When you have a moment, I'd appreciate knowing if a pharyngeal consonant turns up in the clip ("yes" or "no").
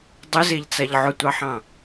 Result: yes